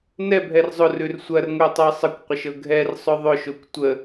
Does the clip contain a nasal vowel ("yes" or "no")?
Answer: no